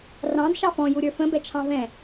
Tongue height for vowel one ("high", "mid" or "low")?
low